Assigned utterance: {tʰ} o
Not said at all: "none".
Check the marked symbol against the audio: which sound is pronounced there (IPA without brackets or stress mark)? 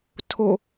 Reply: tʰ